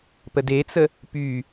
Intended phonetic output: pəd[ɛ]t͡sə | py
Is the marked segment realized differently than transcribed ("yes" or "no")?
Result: yes